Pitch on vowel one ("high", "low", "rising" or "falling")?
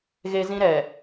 high